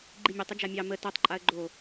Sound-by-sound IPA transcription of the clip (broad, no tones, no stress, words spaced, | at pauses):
ɡ͡ǃimʲotˤ ɘd͡ʒamʲɑ mə totˤ ǃʼaə̯ɡ͡ǃo